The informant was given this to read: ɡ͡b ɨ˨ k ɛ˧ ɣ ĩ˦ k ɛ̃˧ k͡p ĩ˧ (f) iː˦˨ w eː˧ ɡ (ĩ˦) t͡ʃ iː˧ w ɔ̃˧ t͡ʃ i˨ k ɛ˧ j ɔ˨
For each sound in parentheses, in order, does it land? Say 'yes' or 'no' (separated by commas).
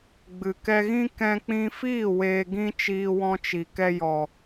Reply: yes, yes